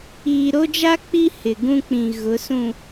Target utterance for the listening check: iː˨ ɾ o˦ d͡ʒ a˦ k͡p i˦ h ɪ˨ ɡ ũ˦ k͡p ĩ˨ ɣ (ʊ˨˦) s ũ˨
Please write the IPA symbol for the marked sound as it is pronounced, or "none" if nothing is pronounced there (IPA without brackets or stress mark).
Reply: ʊ˨˦